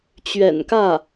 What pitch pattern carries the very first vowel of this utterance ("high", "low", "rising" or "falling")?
low